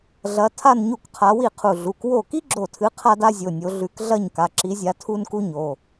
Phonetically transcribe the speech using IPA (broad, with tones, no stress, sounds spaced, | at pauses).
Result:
ɮ ɐ˨˦ tʰ a˥˧ n ɲ u˥˩ k qʰ a˨˦ w i˥˩ qʰ u˧˩ ɮ u˩˧˩ k w o˥˩ k i˥ ɡ͡ǁ o˧˩ tʰ ɨ˨˦ qʰ a˥ d a˥ zʲ o˩˧˩ nʲ o˨˦ ɮ ʉ˨˦ k ɮ ɐ˥˧ ɲ k a˩˧˩ ǁ i˨˦ zʲ a˨˦ tʰ u˥ n k u˥ ɲ o˩˧˩